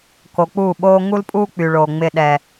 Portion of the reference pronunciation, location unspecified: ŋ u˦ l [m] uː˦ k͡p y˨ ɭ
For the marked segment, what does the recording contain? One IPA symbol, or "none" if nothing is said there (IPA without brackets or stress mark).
pʼ